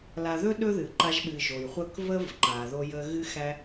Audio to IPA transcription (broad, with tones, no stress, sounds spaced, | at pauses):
l a˨ ð ɵ˧ ɗ ɵ˦ ð ɨ˨ ǃ a˧ ʒ ɓ ɨ˨ ʒ o˨ j χʷ ə˦˨ k v ə˦ v ǃ a˨ ð o˧ j ə˧ ɣ ɨ˦ x æ˦